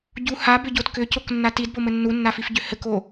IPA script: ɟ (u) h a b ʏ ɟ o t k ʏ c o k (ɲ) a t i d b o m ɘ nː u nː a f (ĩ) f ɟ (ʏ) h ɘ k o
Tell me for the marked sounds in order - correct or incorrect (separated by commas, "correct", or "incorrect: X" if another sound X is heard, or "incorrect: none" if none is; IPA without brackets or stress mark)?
correct, incorrect: nː, incorrect: i, correct